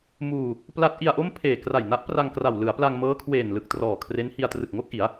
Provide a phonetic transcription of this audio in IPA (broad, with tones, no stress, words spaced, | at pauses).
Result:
muː˧ | pla˦˥t̚ ʔi˧a̯ʔo˥˩m pʰeː˨˩ kra˨˩jna˦˥ʔpra˧ŋ kra˨˩w lɯ˩˦a̯pla˧ŋmɤː˦˥kʰweː˨˩n lɯ˨˩k̚trɔː˨˩kʰre˦˥nhi˧a̯ trɯ˨˩k̚ŋo˥˩k̚ʔi˩˦a̯